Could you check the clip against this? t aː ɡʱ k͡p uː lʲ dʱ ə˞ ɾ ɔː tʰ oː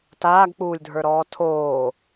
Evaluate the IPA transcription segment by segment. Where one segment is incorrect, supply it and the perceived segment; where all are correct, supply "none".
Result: ɡʱ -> ɡ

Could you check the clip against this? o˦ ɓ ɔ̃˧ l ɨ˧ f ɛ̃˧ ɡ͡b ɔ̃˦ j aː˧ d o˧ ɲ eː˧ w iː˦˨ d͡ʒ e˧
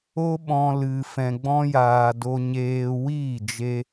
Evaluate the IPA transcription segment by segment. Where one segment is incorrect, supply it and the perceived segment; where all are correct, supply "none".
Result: none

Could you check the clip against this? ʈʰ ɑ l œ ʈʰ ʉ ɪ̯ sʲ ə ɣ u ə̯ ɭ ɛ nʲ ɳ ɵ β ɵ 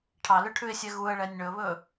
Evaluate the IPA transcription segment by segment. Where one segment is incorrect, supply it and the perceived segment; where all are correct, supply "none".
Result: ə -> ɛ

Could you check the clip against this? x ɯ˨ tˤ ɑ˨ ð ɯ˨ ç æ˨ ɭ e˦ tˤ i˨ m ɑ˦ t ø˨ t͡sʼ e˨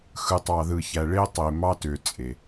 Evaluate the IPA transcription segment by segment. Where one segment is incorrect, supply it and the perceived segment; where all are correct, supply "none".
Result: i˨ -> e˨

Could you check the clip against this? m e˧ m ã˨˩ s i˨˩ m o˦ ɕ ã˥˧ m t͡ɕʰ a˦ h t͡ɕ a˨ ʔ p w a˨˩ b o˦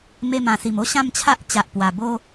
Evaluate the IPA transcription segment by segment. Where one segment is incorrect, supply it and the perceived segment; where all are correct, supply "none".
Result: h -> ʔ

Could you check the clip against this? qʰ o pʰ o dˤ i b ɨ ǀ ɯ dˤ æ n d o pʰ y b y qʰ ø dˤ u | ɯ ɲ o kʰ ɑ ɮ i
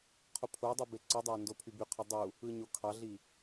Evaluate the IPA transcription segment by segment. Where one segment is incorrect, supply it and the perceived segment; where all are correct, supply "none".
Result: ɨ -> e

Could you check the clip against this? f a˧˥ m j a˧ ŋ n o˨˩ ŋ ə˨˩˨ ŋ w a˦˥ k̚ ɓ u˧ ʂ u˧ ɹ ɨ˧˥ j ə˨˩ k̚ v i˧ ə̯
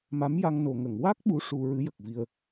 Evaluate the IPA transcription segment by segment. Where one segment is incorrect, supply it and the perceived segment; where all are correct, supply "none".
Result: f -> m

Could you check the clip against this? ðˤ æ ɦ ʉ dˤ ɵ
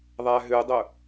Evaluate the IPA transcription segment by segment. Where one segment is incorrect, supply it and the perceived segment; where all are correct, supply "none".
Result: none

